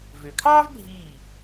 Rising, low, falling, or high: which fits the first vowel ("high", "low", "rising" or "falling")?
low